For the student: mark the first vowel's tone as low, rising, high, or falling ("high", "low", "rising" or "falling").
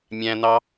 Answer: high